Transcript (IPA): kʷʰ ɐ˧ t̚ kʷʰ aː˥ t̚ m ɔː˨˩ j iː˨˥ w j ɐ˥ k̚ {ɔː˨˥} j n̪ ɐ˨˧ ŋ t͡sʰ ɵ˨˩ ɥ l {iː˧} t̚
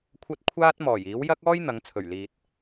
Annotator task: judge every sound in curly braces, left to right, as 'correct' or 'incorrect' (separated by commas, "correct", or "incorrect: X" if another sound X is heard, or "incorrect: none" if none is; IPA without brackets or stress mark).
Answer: incorrect: ɔː˥, incorrect: iː˨